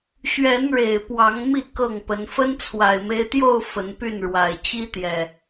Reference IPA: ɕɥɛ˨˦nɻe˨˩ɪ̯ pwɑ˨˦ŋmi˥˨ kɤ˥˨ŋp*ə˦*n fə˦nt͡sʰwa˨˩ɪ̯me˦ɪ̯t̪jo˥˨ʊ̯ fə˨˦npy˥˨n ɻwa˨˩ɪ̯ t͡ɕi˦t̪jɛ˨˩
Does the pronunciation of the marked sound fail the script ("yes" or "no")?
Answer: yes